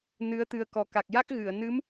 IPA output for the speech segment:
n ɨ˧˥ ə̯ t̪ ɨ˧ ə̯ k ɔ˨˩ k a˨˩ k̚ j a˦˥ k̚ ɣ ɨ˨˩˨ ə̯ n ɨ˧˥ m

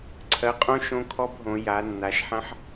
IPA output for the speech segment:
ǀʰ ɜ˩˧ qʼ õ˦ ʃ õ˦ kʰ ɔ˦ b ɦ õ˩˧ j a˩˧ nː a˩˧ ʃ ħ ɐ̃˦ ħ

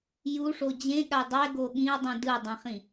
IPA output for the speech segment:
j u ʂ o d͡ʑ ẽ ɠ a dˤ ɛ ɡ o ɠ ĩ ɐ̯ dˤ ũ d ɯ dˤ ĩ χ ĩ

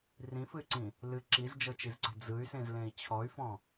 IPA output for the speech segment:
r ĩ f ɨ y̯ ǀ ĩ | l ɨ ǁ i z d͡ʒ ɤ t͡ʃ i z ǀ e̤ d͡z ɯ y̯ s ẽ z l ẽ i̯ t͡ɕʰ ɔ y̯ f ɔ̃

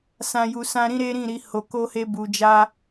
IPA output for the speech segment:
s ã˨ j u˨ s ã˧ ɾ ĩ˦ ɾ e˦ ɾ ĩ˦˨ ɾ i˨˦ h o˧ k o˦ h e˦ b u˧ d͡ʒ a˦

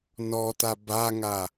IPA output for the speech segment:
n ɔ t a b a ŋ a

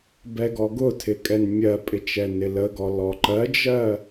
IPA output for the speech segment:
b ɛ ɡ ɔ ɡ ʊ tʰ ɪ kʼ ɛ n mʲ ɜ pʼ ɪ t͡ʃ ɛ n ɪ l ə ɡ ɔ l ɔ ǃ ɜ d͡ʒ ɜ

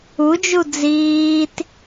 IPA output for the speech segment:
u d͡ʒ u d͡z iː t

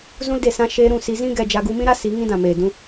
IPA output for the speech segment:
z ũ˦ l d e˦˨ s ã˦ ʃ eː˧ ɾ ũ˦˨ s i˧ z ĩ˦ ɡ ɛ˧ d͡ʒ a˧ ɡ u˧ m ĩ˦ ɾ a˦ s i˨˦ ŋ ĩ˦ d ã˨ m eː˨ d ũ˧

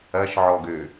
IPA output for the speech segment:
ɐ ʃ ʕ ɔ ɡ ø

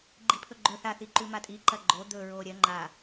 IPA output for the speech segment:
ɡ͡ǃ i pʰ ɵ ɡ͡ǃ ɵ θ a θ i ǃ ʉ m a tʼ i ǃ ɐ ɡ͡ǃ o d̪ ɵ ɹ o ɾʲ ɐ ŋ͡ǃ a

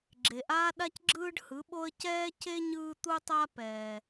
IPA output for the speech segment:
ɡ͡ǁ e˩ ʔ aː˥ ɗ a˥ c ɡ͡ǁ ɯː˥ ɖ h ɯ˩˥ ɓ o˥ ə̯ c ɛː˥ c e˥ ɲ ɯː˥ t̪ u˥ tˤ a˥ p ɛː˩

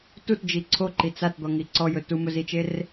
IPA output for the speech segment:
t u t d͡ʒ i ǀʰ o ǃ i t͡s a t d̪ ɔ ŋ i ǀ ɔ j ɵ t u m ɵ z i t͡ʃ e r

